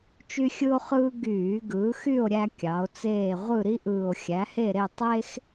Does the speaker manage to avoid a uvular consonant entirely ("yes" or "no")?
no